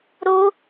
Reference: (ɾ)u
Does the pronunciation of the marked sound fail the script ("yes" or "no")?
no